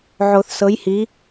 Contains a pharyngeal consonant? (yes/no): yes